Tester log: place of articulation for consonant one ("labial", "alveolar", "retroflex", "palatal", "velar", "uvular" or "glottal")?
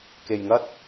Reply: velar